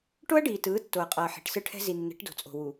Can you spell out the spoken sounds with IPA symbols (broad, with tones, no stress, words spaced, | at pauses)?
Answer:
ʈo˦ɐ̯ɖiː˨tɯː˨˦ tːo˨ɐ̯qʼʌː˨ ħe̤˨ʈsɯ˦ʈʰɛ̤˦ zi˨nːɛ̤˨˦ʈdo̤˨t͡sʼo̤˨ wu˨